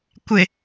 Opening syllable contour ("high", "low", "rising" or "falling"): low